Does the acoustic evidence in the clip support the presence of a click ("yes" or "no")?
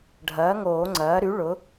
yes